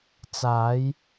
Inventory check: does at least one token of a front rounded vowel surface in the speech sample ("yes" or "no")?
no